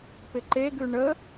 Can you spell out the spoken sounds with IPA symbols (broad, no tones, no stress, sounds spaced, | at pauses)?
p ɪ ǃ e ɡ ʉ ɳ ə